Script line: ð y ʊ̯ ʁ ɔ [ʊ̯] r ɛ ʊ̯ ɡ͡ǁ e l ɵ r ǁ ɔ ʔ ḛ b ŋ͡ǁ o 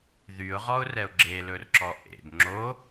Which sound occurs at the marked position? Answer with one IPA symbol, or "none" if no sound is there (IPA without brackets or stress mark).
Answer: ʊ̯